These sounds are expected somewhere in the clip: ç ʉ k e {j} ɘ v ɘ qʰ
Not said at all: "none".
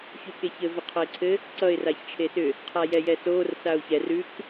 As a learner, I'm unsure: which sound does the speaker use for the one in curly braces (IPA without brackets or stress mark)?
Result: ç